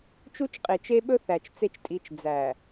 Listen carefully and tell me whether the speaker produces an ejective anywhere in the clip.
yes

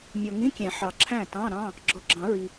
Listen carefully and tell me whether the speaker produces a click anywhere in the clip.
yes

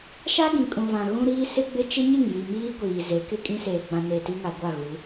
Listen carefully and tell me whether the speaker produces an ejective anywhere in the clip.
yes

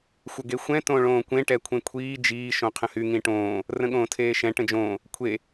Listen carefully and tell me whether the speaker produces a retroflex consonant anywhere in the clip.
yes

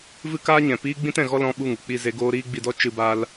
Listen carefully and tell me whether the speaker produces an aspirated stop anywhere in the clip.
no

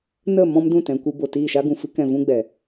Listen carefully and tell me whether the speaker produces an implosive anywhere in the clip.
no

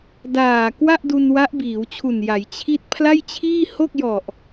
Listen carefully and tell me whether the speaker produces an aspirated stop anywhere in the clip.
yes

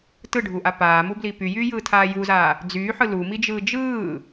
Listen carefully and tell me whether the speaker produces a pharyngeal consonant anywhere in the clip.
yes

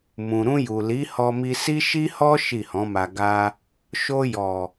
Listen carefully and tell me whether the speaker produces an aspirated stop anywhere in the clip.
no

